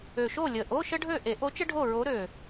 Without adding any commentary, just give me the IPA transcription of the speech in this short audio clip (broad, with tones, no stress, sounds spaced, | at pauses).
ø˨˩ ʃ o˥˨ lʲ ə˨˩ ʔ o˧˥˧ ʃ ə˥ ɖʱ ø˥˨ ʔ e˨˩˦ ʔ o˧˥ t͡ʃ ə˥ ɖʱ o˥˨ ɹ o˧˥ ɾ ø˨˩